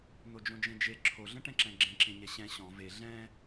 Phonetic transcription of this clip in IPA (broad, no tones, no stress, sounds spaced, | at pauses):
n̪ o d͡ʒ õ d͡ʒ ẽ d͡ʒ e ǁʰ o ɮ ə̃ ʈ ɛ̃ ǁ ɛ̃ ɡ͡ǁ ẽ ǁ ẽ ɲ ɛ ɕ ɛ̃ ɕ ɔ̃ v e ɮ ɛ̃